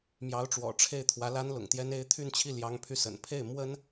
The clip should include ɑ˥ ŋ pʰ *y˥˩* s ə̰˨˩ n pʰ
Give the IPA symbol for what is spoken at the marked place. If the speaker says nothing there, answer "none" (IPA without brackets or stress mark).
y˥˩